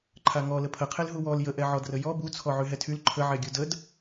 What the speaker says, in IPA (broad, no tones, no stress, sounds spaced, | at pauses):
ǃʰ a ŋ ɔ l ə pʰ ə qʰ e l ɦ u w ɔ l j ə ʔ ɛ ʕ ɔ d r ə j ɔ b u t͡sʰ ɔ ʕ y ɦ ɛ tʰ y l ǃʰ ə ʕ ɛ ɡʲ u d ə d